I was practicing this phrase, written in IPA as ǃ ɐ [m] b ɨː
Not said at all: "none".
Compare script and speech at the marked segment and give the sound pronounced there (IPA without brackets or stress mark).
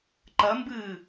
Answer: m